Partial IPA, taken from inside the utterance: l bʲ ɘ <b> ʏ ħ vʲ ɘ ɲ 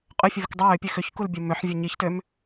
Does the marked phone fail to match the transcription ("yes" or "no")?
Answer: yes